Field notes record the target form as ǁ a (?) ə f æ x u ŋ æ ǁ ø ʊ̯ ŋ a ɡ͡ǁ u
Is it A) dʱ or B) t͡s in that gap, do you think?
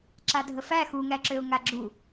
A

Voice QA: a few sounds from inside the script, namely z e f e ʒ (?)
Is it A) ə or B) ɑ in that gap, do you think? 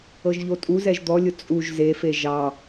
B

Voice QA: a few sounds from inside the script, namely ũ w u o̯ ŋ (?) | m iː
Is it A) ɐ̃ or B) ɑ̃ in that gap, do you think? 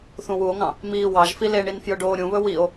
B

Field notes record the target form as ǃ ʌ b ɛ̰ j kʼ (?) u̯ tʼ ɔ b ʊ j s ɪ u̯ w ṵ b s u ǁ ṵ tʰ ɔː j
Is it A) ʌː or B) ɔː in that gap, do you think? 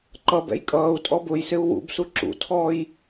A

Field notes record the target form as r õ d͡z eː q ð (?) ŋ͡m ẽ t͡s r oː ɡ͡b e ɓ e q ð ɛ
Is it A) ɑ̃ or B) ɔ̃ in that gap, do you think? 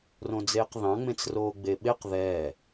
A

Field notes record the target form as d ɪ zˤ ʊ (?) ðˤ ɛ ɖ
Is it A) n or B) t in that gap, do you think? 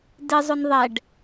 A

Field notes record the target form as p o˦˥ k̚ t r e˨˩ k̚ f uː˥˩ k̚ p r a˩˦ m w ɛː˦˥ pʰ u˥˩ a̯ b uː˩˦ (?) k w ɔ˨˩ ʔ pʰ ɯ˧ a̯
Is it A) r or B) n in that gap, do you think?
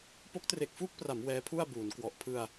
B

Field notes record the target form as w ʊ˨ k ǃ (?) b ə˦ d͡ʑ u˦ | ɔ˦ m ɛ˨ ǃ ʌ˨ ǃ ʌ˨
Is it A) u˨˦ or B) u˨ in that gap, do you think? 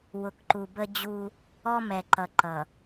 B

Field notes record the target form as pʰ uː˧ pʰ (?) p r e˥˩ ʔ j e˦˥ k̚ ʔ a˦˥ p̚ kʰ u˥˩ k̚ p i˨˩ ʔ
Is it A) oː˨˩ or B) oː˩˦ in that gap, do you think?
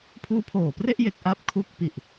A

